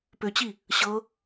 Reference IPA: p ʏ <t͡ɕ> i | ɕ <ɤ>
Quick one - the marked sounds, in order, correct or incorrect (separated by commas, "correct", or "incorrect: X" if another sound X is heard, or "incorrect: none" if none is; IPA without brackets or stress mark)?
correct, correct